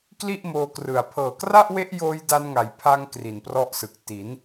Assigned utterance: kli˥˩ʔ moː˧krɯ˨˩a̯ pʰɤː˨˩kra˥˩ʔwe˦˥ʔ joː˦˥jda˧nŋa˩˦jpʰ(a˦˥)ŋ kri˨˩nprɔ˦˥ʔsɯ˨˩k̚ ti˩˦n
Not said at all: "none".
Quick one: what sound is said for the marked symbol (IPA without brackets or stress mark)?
a˧